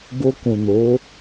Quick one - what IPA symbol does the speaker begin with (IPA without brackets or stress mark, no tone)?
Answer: b